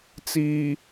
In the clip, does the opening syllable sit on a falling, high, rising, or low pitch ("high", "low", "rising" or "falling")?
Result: low